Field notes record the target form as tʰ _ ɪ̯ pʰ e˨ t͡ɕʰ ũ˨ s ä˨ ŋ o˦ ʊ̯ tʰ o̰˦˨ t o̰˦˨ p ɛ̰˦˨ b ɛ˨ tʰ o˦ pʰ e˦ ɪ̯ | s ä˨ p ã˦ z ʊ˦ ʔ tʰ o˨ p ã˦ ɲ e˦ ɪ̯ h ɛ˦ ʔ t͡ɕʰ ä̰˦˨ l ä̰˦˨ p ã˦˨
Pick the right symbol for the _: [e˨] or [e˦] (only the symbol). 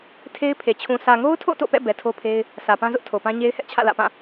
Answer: e˦